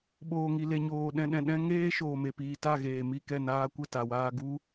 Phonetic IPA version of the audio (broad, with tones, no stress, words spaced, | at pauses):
ɓoː˨ŋi˨le˨ɲoː˨ ɗɛ̃˨ɗɛ̃˨ɗɛ̃˧ ŋeː˦ ʃoː˨me˨piː˨ ta˦˨ɣeː˨mi˦˨kɛ˦˨ naː˧kʷə˦˨ ta˨waː˧ ɡu˦